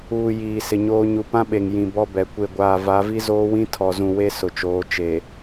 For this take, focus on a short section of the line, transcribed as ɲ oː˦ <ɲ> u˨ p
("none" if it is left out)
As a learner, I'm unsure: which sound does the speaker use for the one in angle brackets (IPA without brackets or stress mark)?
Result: ɲ